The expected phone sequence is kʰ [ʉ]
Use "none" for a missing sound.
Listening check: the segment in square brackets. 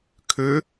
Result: ø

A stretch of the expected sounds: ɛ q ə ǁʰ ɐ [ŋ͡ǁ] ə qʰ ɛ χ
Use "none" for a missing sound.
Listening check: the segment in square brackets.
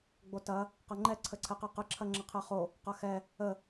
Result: ŋ͡ǁ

